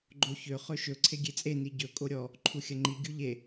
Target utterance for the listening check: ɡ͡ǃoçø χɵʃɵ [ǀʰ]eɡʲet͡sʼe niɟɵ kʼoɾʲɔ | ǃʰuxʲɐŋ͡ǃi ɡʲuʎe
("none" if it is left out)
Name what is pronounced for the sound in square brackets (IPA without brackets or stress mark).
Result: ǀʰ